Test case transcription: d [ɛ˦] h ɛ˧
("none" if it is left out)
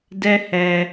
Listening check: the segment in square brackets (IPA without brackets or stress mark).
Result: ɛ˦